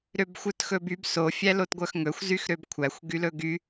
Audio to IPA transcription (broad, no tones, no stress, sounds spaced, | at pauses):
ɾ ø b xʷ œ t x ɵ b y b s o fʲ æ l o t ɡʷ œ x ŋ ɵ xʷ z y x ɾ ø b kʷʰ æ xʷ ɡ y l ɵ ɡ y